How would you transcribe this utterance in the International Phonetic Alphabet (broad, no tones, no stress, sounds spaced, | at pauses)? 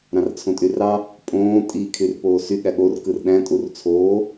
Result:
ɾ ɑ̃ r t͡sʰ õ tʼ y r ɑ | pʼ õː tʼ i kʰ y r p oː s y ɠ æ ɠ o r k ɯ r ɗ æ̃ tʼ u r t͡sʰ oː